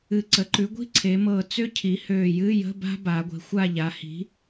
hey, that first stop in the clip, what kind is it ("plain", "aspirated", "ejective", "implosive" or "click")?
click